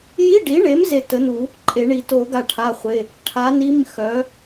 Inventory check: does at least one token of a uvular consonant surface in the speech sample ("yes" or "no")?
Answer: yes